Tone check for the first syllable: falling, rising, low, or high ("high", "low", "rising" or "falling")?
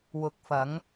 rising